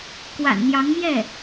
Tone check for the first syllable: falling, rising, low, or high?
low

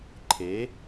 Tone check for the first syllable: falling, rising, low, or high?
rising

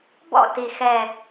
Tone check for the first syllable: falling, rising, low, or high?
falling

